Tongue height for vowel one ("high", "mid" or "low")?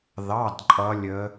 low